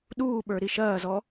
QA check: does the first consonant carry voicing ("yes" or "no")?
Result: yes